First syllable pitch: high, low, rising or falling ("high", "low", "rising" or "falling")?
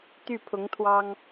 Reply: falling